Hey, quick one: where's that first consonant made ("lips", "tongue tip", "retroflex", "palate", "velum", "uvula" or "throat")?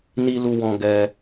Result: tongue tip